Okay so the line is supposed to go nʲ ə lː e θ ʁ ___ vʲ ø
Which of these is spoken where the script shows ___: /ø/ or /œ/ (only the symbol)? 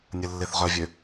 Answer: œ